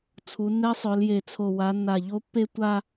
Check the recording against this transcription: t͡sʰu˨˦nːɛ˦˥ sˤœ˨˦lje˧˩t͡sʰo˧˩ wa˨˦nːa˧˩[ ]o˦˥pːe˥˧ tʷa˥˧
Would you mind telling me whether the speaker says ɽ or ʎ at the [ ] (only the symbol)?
ʎ